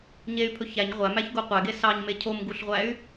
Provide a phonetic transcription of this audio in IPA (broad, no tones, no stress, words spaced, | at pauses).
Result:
ɲey̯pʰɵ çæɲ ʁʷæmæçɡo qʷæɡe sɑɲme cʰomɡuɬʁʷæy̯